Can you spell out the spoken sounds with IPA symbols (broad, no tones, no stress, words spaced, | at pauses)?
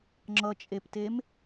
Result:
ŋ͡ǁʌt͡ʃʼeptem